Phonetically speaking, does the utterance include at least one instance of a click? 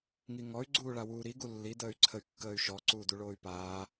yes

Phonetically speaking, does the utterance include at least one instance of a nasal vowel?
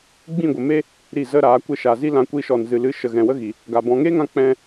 yes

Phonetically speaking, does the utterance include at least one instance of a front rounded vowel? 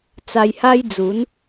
no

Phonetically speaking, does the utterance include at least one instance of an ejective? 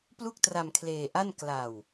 no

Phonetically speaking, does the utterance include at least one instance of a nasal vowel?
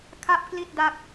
no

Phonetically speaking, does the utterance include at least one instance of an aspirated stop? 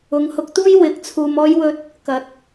yes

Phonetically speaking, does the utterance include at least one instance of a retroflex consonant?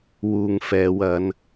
no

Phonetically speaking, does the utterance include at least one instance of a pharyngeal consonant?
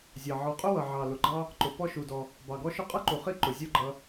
yes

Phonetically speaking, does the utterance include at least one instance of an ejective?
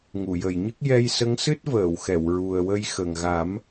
no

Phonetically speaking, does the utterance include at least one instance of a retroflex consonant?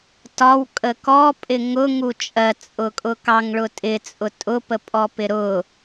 yes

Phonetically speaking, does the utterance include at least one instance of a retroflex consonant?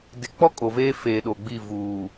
no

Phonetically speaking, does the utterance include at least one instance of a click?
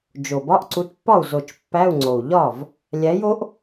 yes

